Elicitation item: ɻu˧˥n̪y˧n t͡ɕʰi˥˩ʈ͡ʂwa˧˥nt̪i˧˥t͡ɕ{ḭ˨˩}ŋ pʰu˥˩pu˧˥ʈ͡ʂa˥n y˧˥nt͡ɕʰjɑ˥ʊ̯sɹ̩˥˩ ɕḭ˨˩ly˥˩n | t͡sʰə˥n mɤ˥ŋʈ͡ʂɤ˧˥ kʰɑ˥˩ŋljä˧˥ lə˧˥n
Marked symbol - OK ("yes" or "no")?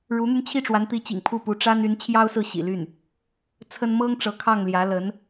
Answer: yes